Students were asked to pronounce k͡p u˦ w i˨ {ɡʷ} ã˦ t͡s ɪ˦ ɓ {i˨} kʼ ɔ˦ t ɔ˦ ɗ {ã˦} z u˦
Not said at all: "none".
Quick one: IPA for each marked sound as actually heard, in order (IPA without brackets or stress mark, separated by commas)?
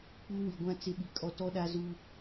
ɡʷ, i˨, a˦